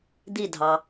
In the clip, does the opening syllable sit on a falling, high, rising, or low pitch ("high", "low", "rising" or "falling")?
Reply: falling